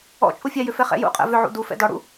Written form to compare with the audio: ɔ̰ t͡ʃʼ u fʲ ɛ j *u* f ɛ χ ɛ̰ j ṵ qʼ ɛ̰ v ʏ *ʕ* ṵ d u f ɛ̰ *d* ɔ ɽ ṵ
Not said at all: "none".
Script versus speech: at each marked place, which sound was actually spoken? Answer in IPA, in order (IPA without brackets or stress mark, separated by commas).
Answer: ʏ, ʕ, d